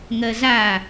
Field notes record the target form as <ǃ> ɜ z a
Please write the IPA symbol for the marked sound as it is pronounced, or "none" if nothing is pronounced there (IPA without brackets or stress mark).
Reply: ŋ